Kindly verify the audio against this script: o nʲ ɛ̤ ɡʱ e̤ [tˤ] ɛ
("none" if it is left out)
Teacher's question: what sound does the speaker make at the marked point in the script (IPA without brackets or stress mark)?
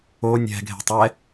tˤ